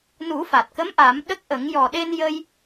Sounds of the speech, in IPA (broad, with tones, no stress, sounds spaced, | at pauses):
n u˨˩˦ f a˨˩ t̚ k ə˧˥ m ʔ a˨˩˦ m ɗ ə˦˥ k̚ ʔ ə˨˩˦ ŋ j ɔ˨˩ ɗ e˧ n j ə˧ j